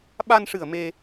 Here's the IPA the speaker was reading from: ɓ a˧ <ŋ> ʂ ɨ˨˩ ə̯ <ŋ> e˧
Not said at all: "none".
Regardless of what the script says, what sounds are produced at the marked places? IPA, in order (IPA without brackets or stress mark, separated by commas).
n, m